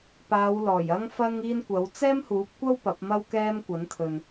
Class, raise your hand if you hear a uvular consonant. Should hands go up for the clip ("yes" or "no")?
no